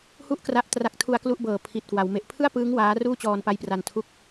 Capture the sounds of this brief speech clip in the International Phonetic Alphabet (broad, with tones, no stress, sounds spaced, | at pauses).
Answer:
h u˥˩ ʔ k r a˦˥ ʔ t r a˦˥ k̚ tʰ u˧ a̯ k l u˥˩ ʔ b ɤː˨˩ pʰ i˨˩ t̚ k w a˩˦ w m e˨˩ ʔ pʰ ɯ˥˩ a̯ p ɯː˦˥ ŋ w aː˦˥ r uː˥˩ t͡ɕ ɔː˧ n p a˦˥ j p r a˧ n tʰ u˦˥ k̚